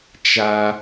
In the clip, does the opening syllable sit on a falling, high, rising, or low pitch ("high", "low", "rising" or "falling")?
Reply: high